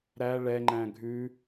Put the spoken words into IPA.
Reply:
ɾ æ ɭ ɛ ŋ͡ǃ æ̃ ɡʱ ʉ

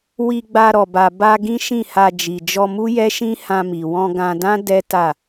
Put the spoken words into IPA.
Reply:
w i˧ ɡ͡b a˧ ɾ ɔ˨ b a˨ b a˧ ɡ ĩ˦ ʃ ĩ˦˨ h a˧ d͡ʒ i˨ d͡ʒ ɔ˧ m u˦ j ɛ˦ ʃ ĩ˦ h ã˧ m i˨ w ɔ̃˧ ɡ ã˧ d ã˦ d ɛ˦ t a˦˨

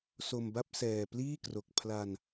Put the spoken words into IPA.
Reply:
s o˧ m b a˥˩ p̚ s ɛː˧ p l iː˥˩ k r o˨˩ k̚ pʰ l a˧ n

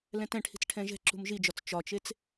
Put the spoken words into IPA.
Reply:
l ɛ̃ t ɛ̃ ʈʰ i̤ t͡s ʈʰ ɛ̃ ʒ ɛ̤ ǁ ṳ m ʒ i d͡ʒ ɒ t͡s t͡ʃ ɒ t͡ʃ e t͡s

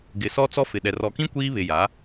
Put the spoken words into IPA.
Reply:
ɡ ɪ˨ s ɔ˦ t͡s ɔ˦ f ɪ˨ ɗ ɛ˨ r ɔ˨ k ĩ˦ kʷ iː˦ β ɪ˨ j a˨˦

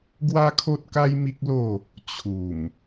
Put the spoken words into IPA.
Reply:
ɡ w a˦ kʰ o˦ t̚ k a˦ j m i˦ k̚ l o˥˧ | t͡ɕʰ u˨˩ m

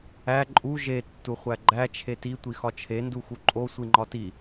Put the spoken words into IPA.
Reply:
æ ǃʼ u ʒ e tː u χʷ æ ɡ͡ǃ æ t͡ʃʰ e t i tʷ i x ɒ t͡ʃʰ e n d u x u ǃʼ o sʷ i ŋ͡ǃ ɒ t i

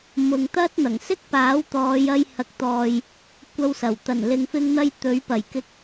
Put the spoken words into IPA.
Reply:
m ʊ˨ ŋ t̪ ɐ˥ t̚ n̪ ɐ˨˩ ŋ s ɪ˥ k̚ p aː˨˥ w t̪ ɔː˨˧ j ɐ˧ j h ɐ˨˥ k̚ t̪ ɔː˨ j | kʷ ɐ˧ w s ɐ˨˩ w t̪ ɐ˨˩ n l ɪ˨ ŋ f ɪ˧ ŋ n̪ ɐ˧ j t̪ ɵ˨˥ ɥ p ɐ˨˩ j k ɪ˧ k̚

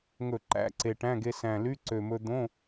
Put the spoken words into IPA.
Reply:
ŋ ɵ˧˩˧ ǃ æ̰˧˥˧ ǀ e˨˩ ʈ æ̃˧˥˧ ɡ e˧ s æ̃˨˩ l y˧˥˧ ǀ ø˨˩ m ɵ˧ d̪ õ˧˥˧

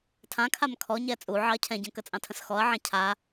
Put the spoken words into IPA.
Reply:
tʰ ã kʰ a m kʰ ɔ ɲ ɛ t͡sʼ u ʕ ɑ ɐ̯ cʰ ɛ̃ ɟ ə̃ k ə t͡sʼ ɑ̃ tʰ ə̃ s x ɔ ɐ̯ ʕ ɛ̃ cʰ a

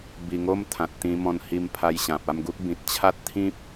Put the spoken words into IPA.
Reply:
b i˨˩ ŋ o˧ m t̪ʰ ã˨ t̚ t̪ ĩ˧ m ɔ̃˧ n h i˧ m pʰ a˧ j ɕ ã˨ p̚ a˥˧ m ɡ u˦ k̚ b ĩ˨ t̚ t͡ɕʰ a˦ t̚ t̪ʰ ĩ˦ p̚

